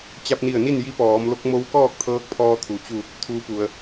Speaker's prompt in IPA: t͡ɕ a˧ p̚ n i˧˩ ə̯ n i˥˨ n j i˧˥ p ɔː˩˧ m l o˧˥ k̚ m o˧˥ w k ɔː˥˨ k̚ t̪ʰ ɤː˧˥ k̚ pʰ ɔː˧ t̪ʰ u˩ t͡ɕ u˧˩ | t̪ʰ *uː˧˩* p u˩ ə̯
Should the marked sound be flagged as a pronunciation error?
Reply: yes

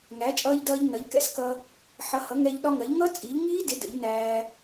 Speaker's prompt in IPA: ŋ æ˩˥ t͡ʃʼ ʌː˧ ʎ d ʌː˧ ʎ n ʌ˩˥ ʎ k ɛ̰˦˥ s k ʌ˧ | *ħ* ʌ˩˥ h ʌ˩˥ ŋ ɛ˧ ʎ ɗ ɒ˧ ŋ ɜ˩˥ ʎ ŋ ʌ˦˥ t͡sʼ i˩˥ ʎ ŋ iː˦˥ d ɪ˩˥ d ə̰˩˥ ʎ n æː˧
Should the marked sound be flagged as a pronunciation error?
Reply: no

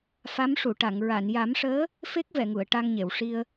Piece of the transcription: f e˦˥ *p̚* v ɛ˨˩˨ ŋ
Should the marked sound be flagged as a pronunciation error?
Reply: yes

